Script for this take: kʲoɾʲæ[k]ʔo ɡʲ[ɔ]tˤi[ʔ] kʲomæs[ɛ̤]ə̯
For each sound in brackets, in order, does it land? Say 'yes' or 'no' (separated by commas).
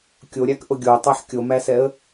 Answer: yes, no, no, no